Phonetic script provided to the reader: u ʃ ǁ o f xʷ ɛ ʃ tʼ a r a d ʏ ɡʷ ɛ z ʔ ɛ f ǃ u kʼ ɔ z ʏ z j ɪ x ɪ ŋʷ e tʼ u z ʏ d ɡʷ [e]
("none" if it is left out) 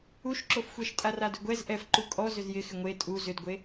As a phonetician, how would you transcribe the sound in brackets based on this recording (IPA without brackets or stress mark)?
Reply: e